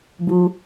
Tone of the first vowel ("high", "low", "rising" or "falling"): low